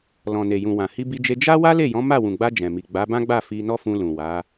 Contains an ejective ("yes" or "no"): no